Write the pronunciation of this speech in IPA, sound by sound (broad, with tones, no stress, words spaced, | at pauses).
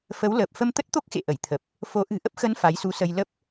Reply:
fə˨˦wləː˨˩p̚ fə˧mt̪ə˦˥t̚t̪o˦˥k̚xḛ˧˨ ʔə˧˩jt̪ʰə˨˩p̚ | fo˨˦ ʔɨ̤˨˩ ʔə˦˥p̚xə˨˦n fa˨˦jsu˨˦sə˧j lə˦˥p̚